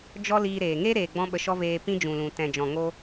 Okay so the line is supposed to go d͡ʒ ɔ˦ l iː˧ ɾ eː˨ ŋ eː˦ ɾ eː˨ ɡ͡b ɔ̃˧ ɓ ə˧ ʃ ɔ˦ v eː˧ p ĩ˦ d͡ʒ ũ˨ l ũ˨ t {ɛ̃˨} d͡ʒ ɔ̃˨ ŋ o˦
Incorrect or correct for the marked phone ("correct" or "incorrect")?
correct